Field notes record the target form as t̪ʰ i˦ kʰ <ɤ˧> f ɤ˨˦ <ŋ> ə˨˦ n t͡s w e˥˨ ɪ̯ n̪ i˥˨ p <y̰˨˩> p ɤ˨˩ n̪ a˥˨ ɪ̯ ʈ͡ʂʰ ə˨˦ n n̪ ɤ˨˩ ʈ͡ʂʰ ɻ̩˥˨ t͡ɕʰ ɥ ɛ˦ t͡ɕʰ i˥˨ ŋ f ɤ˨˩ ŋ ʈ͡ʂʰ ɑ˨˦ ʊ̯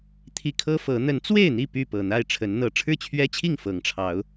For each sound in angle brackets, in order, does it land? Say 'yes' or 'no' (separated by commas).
no, no, no